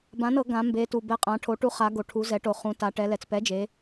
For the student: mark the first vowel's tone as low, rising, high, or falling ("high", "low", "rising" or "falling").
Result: rising